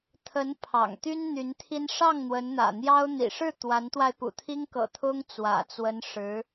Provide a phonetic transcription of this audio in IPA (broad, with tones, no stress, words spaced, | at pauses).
t̪ʰə˧˥n pʰɑ̰˨˩ŋt̪y˥n n̪y˧˥nt̪ʰi˥n ʂɑ˥˩ŋ n̪wə˧˥nn̪ä̰˨˩n̪jɑ˥ʊ̯ n̪ḭ˨˩ʂɻ̩˥˩ t̪wa˧˥nt̪wa˧ɪ̯ pṵ˨˩t̪ʰi˥ŋkɤ̰˨˩ t̪ʰʊ˥ŋ t͡swä̰˨˩t͡swə˧˥n ʂɻ̩˧˥